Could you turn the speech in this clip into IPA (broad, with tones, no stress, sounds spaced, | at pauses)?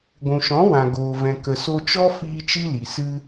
ɡʷ ũ˨ ʃ ɔ̃˨˦ w ã˨ ɡ oː˨ v ɛ̃˨ k ə˨ s o˧ t͡ʃ ɔ˦ f iː˧ t͡ʃ i˦ l i˨ s ɨ˧